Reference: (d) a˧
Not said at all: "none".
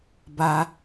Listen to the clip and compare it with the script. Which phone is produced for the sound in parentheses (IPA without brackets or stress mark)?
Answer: b